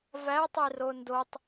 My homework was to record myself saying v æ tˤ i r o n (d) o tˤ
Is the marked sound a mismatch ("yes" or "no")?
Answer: no